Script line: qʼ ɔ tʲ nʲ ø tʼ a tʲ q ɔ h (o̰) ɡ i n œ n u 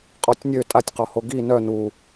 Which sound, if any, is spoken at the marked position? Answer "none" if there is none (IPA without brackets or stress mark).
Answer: o